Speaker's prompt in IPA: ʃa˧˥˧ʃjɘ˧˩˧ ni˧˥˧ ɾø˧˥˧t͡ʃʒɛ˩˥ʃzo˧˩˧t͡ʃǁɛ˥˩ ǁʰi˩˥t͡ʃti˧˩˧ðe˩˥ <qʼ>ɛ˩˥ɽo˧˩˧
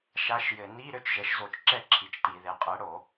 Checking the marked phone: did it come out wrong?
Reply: no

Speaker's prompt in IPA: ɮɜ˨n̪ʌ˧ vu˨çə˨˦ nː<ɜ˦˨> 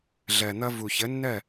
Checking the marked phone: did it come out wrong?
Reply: no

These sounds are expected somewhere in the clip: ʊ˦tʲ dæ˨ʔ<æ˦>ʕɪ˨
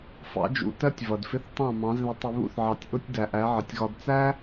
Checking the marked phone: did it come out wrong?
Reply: yes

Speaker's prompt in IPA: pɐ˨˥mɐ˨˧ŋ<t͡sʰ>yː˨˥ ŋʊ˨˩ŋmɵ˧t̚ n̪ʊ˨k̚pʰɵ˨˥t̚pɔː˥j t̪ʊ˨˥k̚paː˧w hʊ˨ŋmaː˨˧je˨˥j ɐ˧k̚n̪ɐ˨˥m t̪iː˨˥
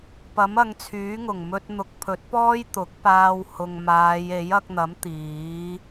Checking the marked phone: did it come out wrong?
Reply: no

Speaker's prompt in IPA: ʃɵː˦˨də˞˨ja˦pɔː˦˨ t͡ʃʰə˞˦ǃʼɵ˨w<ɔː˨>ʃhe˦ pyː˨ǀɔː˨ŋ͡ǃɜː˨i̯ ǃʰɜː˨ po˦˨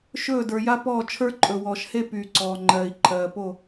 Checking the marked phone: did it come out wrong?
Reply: no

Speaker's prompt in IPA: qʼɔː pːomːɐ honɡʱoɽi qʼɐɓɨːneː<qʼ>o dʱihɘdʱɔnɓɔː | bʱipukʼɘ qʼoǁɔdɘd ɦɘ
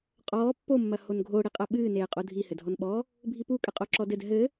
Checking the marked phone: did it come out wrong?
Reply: no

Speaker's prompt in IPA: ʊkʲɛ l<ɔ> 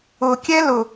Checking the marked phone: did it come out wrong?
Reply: yes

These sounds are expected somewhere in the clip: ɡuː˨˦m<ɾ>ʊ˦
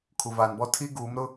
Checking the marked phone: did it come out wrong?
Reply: no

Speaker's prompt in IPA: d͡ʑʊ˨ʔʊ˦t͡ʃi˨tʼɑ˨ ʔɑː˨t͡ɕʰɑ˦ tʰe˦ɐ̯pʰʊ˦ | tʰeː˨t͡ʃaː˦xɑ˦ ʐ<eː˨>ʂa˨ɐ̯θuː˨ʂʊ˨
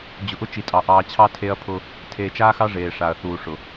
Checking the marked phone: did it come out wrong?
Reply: no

